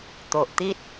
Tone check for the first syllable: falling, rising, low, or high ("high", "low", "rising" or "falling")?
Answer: low